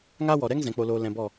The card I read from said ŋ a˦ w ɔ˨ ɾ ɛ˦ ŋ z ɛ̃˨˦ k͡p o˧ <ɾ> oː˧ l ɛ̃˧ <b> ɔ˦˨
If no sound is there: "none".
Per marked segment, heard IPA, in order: l, b

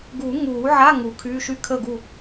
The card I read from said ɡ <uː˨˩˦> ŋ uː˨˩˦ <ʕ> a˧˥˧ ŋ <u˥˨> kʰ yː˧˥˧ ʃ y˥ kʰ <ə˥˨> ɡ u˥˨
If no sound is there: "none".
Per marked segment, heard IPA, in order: u˨˩˦, ʕ, u˨˩˦, ə˥˨

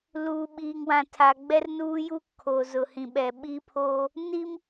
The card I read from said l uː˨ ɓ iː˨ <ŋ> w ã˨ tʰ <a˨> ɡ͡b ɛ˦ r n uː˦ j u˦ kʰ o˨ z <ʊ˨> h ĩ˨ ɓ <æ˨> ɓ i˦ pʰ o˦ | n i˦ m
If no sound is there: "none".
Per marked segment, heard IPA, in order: ŋ, a˨, ʊ˨, ɛ˨

